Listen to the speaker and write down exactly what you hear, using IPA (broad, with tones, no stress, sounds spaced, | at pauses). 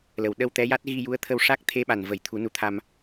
l ə˨˩ w ɗ ə˧ w t̪ ɛ˧˥ j a˦˥ t̚ ɣ i˧ j u˧˥ ə̯ t̪ʰ ə˧ w ʂ a˦˥ k̚ t̪ʰ e˧˥ ɓ a˨˩ n v ə˨˩˦ j t̪ʰ u˨˩˦ n u˧˥ t̪ʰ a˧ m